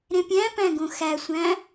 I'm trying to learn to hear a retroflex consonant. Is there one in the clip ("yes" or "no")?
no